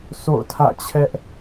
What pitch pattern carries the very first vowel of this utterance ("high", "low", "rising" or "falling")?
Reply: falling